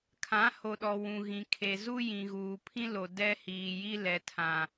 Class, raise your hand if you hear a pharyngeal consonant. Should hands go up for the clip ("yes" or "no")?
no